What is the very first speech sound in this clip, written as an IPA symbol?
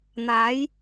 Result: n̪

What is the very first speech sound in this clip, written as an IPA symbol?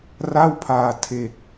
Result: r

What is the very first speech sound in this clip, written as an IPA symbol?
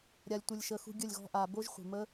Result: ɾʲ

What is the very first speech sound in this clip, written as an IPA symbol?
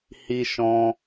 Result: h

